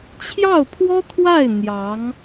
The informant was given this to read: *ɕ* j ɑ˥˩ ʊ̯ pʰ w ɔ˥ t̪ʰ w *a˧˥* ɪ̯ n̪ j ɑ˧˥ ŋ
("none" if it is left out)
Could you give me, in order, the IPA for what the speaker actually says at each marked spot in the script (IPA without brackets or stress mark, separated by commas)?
t͡ɕʰ, a˥˩